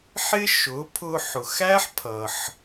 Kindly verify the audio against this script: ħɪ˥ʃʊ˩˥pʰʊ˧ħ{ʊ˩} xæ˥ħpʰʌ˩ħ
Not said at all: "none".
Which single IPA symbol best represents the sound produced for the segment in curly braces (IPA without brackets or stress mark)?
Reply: ʊ˩